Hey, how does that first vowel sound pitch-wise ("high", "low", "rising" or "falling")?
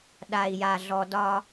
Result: low